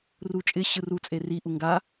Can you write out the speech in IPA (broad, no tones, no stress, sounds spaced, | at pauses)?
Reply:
r u t͡ʃʼ ɪ ɕ ɯ r u t͡sʼ e r i ʔ u ŋ ɡ a